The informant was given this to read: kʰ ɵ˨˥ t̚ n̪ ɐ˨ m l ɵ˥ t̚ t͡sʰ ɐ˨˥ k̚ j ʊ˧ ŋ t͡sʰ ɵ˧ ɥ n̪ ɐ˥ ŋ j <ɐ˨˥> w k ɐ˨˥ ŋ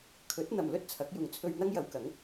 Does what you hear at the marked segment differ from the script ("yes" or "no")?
yes